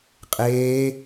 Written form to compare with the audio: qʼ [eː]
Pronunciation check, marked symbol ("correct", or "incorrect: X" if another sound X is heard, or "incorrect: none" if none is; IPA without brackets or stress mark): correct